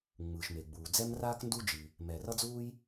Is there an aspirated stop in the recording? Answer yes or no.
no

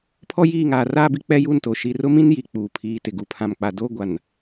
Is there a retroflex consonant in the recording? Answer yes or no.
no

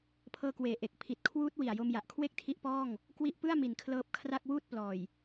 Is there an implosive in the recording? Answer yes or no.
no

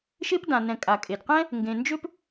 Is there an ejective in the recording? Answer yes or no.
yes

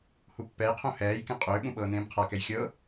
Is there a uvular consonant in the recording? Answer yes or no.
yes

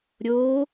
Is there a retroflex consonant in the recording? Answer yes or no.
no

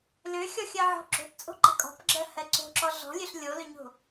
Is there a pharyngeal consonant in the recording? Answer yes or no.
yes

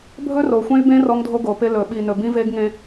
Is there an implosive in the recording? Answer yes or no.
yes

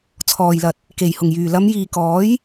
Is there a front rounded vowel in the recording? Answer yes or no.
yes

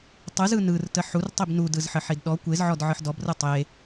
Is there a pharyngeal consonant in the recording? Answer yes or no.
yes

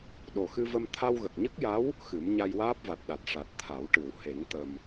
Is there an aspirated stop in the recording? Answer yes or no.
yes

